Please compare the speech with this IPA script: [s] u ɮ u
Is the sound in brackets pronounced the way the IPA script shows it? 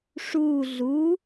no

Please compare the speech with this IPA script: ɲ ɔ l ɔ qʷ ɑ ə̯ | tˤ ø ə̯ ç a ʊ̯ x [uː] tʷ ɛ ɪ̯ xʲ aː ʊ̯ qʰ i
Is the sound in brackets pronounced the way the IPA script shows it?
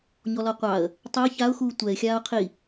yes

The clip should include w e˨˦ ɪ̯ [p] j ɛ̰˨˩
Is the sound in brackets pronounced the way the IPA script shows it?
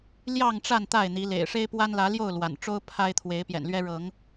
yes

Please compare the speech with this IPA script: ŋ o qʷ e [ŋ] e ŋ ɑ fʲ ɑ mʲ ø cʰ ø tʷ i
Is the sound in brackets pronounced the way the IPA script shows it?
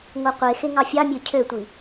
no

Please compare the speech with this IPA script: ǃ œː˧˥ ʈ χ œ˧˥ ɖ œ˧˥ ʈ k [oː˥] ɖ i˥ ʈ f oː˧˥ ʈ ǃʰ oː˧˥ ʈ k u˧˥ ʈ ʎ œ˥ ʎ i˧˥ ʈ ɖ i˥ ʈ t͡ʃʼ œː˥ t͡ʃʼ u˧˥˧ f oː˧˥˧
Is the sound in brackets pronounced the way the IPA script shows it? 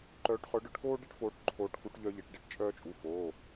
yes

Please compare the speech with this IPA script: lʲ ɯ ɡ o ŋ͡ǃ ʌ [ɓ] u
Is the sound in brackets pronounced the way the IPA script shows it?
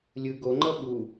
yes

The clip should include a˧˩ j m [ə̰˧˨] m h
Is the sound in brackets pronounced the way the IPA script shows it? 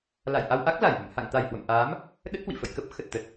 yes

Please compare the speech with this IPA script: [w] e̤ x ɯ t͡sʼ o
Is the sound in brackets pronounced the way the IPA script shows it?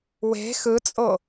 yes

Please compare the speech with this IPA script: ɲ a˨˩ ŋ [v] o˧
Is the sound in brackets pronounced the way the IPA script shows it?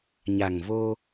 yes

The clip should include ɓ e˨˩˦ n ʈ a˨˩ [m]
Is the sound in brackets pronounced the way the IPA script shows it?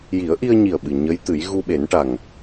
no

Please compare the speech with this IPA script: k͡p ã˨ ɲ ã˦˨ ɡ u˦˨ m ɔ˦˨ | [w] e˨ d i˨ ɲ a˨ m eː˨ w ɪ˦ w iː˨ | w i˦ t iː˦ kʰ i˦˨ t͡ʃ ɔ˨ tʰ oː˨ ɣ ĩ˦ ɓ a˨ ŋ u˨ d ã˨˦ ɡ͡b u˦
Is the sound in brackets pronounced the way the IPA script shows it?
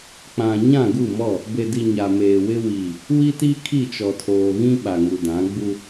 no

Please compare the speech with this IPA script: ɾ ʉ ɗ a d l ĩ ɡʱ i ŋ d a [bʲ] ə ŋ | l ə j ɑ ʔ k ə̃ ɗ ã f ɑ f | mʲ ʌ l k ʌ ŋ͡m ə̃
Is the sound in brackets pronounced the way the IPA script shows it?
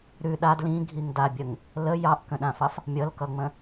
yes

